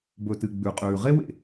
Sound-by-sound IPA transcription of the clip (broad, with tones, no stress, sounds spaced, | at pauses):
b ɵ˨ t ɨ˨ ɡ͡b ʉ˨ qʼ ʉː˨ ʁ e˦ w ḛ˨